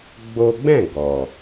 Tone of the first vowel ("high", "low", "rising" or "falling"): high